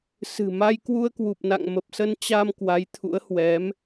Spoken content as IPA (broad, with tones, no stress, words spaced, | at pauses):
sɨ̤˨˩ma˧j kwu˧ə̯kwu˨˩p̚na̰˧˨ŋ mə˨˩p̚sə˧nt͡ɕa˧m kwa˨˦jt̪ʰṵ˧˥ə̯hwɛ˨˦m